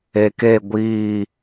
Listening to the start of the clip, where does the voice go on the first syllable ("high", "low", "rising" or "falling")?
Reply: low